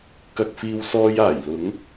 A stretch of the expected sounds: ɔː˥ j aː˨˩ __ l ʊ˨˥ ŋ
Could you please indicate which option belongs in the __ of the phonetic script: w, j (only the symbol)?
j